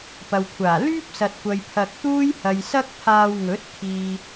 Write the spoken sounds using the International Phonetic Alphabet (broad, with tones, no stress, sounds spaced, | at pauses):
p ɐ˨ w kʷʰ aː˨˩ l yː˥ p̚ s ɐ˨ t̚ kʷ ɐ˨ j pʰ ɐ˧ k̚ t̪ uː˥ j h ɐ˨ j s ɐ˥ k̚ pʰ aː˧ w ŋ ɵ˨˥ t̚ kʰ iː˨